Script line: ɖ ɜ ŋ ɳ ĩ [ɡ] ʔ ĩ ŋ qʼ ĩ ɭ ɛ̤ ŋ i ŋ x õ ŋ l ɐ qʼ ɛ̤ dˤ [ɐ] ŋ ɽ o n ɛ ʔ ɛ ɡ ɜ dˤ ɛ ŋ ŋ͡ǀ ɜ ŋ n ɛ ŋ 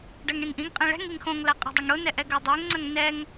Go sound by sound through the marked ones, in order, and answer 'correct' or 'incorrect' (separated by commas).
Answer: incorrect, correct